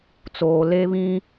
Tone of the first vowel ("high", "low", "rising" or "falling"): low